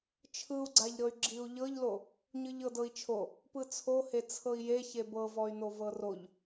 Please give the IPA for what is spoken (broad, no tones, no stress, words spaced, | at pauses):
t͡ʃʰɯu̯ɡ͡ǀaʎɾɤy̯ ɡ͡ǁiu̯ʎɤʎlo | ɲɯʎɤdɤi̯t͡ʃʰo | pɯt͡sʰohe t͡sʰɤi̯je çebɤvɔy̯no vɤroʎ